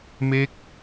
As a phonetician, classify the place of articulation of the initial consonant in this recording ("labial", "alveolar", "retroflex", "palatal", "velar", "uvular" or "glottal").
labial